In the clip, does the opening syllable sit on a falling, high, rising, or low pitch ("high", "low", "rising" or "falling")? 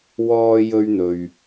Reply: high